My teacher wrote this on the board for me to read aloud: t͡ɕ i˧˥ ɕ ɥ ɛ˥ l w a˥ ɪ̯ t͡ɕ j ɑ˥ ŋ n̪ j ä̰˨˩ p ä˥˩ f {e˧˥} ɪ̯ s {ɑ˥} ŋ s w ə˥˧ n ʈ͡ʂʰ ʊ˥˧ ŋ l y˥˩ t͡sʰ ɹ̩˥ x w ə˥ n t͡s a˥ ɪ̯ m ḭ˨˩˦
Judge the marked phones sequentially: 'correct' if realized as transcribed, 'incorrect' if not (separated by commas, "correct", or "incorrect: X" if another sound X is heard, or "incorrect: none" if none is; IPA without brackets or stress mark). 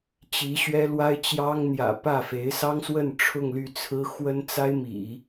correct, correct